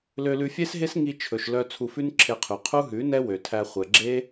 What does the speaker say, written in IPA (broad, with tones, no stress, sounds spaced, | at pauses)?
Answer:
l ø˧ l ʉ˧ fʲ e˦ s ɦ e˦ s ŋ i˧ t͡ʃʰ ɵ˨ ʃ l œ˧ t͡sʰ u˧ f ʉ˦ n ǁʰ e˧ qʰ y˨ qʰ u˦ ɦ ʉ˨˦ n ɛ˦ w ø˨ tʰ æ˧ χʷ ɛ˨ ɡ͡ǁ e˦